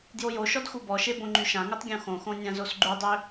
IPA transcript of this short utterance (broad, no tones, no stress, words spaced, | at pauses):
djojoʃɔd xubɔʃe bõŋ͡ǃyʃãŋutˤ ɡʲõxõxõ nʲãzosɡ͡ǃudˤø